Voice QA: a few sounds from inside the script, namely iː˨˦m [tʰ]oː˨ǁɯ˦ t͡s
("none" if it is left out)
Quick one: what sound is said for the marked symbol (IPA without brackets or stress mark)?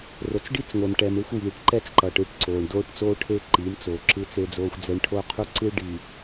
t͡s